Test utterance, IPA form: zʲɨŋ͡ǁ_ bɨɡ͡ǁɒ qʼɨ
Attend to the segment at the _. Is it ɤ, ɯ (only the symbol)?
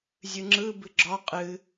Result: ɯ